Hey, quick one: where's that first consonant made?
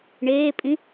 retroflex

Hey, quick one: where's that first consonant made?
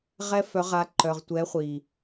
uvula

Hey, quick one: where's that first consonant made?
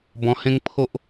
lips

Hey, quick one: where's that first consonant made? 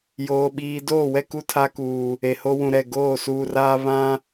palate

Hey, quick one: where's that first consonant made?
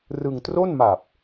tongue tip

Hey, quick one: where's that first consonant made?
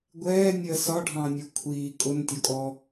velum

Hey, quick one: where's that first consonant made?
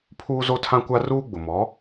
lips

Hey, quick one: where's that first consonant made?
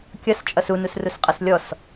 velum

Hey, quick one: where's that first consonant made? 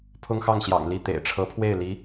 lips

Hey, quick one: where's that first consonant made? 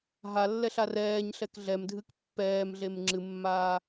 throat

